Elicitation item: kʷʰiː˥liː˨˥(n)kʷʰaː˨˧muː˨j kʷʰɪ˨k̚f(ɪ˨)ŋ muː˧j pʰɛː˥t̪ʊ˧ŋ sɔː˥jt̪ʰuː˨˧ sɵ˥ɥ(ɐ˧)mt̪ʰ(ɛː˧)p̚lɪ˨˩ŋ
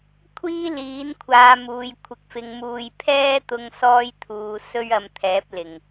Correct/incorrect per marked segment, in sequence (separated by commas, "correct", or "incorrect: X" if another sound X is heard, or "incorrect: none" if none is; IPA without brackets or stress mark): correct, incorrect: ɪ˨˧, correct, incorrect: ɛː˨˥